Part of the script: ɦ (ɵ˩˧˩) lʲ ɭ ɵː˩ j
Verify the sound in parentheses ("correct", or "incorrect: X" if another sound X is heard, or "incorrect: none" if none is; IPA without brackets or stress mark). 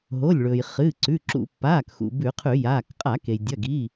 incorrect: o˩˧˩